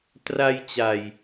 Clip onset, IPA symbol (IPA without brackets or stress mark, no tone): t